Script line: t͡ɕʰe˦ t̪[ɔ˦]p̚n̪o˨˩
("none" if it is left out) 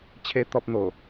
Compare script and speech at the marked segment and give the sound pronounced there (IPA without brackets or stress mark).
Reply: ɔ˦